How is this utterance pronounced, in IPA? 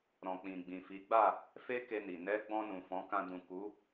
ɾ ɔ̃˨ k͡p ĩ˨ ɡ͡b ĩ˨ f i˨˦ ɡ͡b a˦˨ | f e˦ k e˧ n i˨ n ɛ˨˦ ɡ͡b ɔ̃˧ n ũ˨ f ɔ̃˨˦ k ã˧ d ũ˨ k u˨˦

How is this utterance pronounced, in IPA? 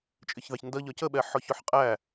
t͡ʃʼ ɪ ç ð ɑ ç n d ʌ ʎ ɒ c ə ɓ ɛ ħ ɔ ç ʊ ħ qʼ æ

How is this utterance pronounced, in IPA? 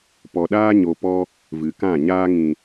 p ɔ˨ ɗ aː˧ ɲ o˨ p ɔ˦ | v ɨ˨ k ã˦˨ ɲ aː˧ ŋ ĩ˨

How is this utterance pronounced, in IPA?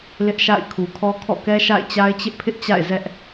l ɪ˦ ʔ ʃ a̰˦˨ ɪ̯ kʰ u˨ kʰ ɔ˦ kʰ ɔ̰˦˨ k ɛ˦ ʃ a̰˦˨ ɪ̯ t͡ɕ a˦ ɪ̯ t͡ɕ ɪ˦ ʔ pʰ ɪ˦ ʔ t͡ɕ a̰˦˨ ɪ̯ z ɛ˦ ʔ

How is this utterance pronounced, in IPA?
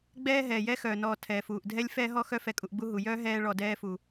ɡ͡b ɛː˦ ɦ ɛː˩ j ɛ˥ x œː˩ n ɔː˨ tʰ ɛː˩ f uː˩ ʔ dʱ ɛ˥ lʲ f ɛː˥ ɦ ɔ˥ x œ˦ f ɛ˨ kʼ u˨ ʔ ɡ͡b u˦ ɦ u˩ j œː˥ ɦ ɛː˦ ɭ ɔ˨ d ɛː˦ f u˩

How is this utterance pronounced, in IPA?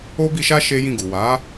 o˦ b i˧ ʃ a˦ ʃ e˦ j ĩ˦˨ ɡ u˨ w a˨˦

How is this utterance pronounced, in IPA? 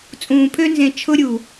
t͡sʼ ũː˨ pʰ ø˧ n z ẽ˨ t͡ʃʰ ʊ˧ ɾʲ u˨

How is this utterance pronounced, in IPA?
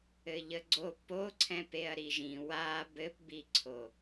ɘ ʎ ə ɡ͡ǀ o p o ǀʰ ɛ̃ p e ɐ̯ ɾ i ʒ ĩ w a b ɘ p b i ǀʰ o

